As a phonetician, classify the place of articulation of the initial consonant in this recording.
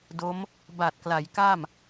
alveolar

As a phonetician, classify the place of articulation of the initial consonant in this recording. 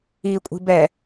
velar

